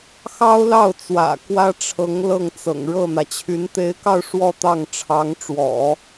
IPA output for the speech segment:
xɑ˥ʊ̯lɑ˥˩ʊ̯t͡swä̰˨˩ kwä˥ʈ͡ʂʰɤ˧˥ŋ lɤ˥˩ŋt͡sɤ̰˨˩ŋ ɻɤ˥˩n̪ä˩t͡ɕʰy˧˥n t̪e˧˥ɪ̯kɑ˥˧ʊ̯ ʂwɔ˥˧t̪ɑ˥˩ŋʈ͡ʂʰɑ˧˥ŋʈ͡ʂwɔ̰˨˩˦

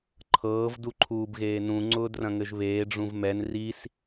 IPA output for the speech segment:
ǃʰɤːv duǃʰuːbɣeːnũ ŋ͡ǀʊːdrɐ̃ŋɘʒβeː ɖ͡ʐũvmɛn ris

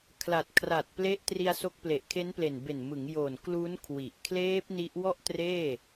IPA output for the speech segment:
kʰla˨˩t̚kʰra˨˩t̚ ple˦˥ʔ tri˧a̯so˦˥k̚ ple˨˩ʔkʰe˦˥nple˨˩n be˨˩nmɯ˩˦ŋ jo˨˩nklu˦˥n kʰwi˨˩ʔ kʰleː˦˥p̚ ni˦˥ʔwɔ˥˩ʔ treː˥˩

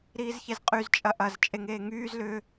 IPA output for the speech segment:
ɾiːzçezqʼyz t͡ʃʼɐʔɐz t͡ʃʼeŋeːŋyːz lʏ

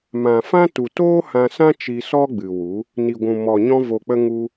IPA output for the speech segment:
mã˨fã˦ tu˨toː˦ hã˧sã˦ t͡ʃi˧ sɔ˦ɡ͡bɨ˨wu˨˦ | ni˨ɡʷũ˨ mɔ˨ ɲɔ̃˧vo˨k͡pə˧ ŋu˧

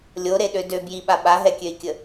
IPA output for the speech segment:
lʲoɾeɗø dø bjiɓa ɓaɦɛkʲøi̯kʲə

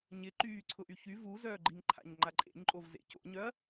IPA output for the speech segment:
ɲɪǃyː ǀʰʊʔyçy vuzœːɡ͡ǃiŋǃʰa̰ɲ ŋ͡ǃaǃʼḛɲǃʼovzḛ co̰ɲœɐ̯

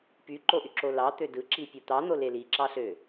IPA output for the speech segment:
pyǃoʔyǁo lɑt̪ø dɯǁipʲu t̪ɑn̪ole liǁɑɬø

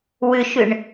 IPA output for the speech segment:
wʏʃʏɳ

